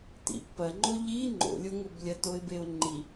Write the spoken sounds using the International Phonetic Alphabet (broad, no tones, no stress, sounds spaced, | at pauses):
t ḭ pː ɐ ŋ͡ǃ o ʎ i ŋ͡ǃ o̰ lʲ o ŋ o b lʲ ɐ t o ɪ̯ b e ʊ̯ ŋ͡ǃ i